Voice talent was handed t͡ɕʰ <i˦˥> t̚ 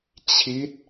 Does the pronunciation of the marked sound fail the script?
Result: no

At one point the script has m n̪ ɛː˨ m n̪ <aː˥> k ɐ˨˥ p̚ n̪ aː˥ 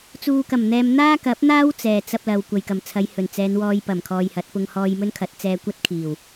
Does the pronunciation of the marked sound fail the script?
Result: no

